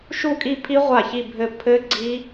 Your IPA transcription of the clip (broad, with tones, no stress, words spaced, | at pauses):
ʃu˥˩kʼi˥˧pʰi˦˥ ʁʷa˥˩çi˥˧bʱɘ˥˧ pʰɘ˦˥ɡ͡ǀi˦˥